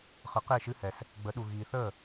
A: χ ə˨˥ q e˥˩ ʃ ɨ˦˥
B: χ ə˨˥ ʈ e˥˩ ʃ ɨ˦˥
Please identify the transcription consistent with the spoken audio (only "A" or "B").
A